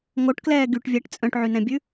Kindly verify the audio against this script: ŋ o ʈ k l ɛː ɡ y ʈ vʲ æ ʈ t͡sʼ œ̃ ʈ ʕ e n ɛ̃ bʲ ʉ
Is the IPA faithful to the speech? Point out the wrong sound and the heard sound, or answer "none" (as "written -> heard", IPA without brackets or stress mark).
e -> y